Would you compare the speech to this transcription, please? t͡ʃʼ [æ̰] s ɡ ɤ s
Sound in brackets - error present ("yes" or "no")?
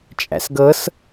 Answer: no